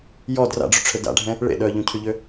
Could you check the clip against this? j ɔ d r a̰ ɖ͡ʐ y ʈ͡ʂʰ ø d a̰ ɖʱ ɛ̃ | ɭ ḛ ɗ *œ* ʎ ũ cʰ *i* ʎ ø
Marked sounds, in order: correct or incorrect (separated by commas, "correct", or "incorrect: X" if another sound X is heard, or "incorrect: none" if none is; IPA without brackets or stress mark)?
correct, incorrect: y